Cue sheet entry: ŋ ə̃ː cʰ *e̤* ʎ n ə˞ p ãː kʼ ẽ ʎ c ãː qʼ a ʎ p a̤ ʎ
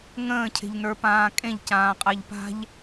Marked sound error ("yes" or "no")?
no